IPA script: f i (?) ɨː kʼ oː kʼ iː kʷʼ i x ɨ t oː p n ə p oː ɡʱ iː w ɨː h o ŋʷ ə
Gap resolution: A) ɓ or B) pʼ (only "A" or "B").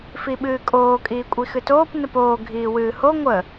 A